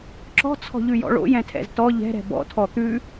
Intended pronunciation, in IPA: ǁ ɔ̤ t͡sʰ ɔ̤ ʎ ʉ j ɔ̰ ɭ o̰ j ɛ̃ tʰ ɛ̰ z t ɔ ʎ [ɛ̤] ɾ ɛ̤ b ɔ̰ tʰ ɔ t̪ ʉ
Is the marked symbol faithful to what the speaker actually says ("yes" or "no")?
yes